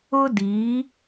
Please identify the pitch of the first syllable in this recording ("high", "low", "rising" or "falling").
high